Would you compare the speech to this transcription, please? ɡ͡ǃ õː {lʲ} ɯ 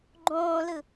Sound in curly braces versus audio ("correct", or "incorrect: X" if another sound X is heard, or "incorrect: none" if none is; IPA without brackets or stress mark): incorrect: l